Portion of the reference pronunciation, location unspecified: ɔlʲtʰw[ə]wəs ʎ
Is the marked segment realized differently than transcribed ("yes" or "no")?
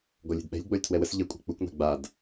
yes